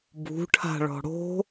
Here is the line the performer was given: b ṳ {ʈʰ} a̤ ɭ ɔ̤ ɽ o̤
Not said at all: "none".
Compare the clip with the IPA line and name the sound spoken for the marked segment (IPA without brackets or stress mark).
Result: ʈʰ